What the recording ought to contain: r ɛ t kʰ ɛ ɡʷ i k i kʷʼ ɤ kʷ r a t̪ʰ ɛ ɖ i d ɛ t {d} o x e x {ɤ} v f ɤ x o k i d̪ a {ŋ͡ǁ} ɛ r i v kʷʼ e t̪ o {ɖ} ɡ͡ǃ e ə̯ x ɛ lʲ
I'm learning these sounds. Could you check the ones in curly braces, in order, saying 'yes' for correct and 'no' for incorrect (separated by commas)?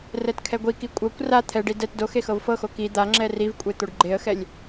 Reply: yes, yes, yes, yes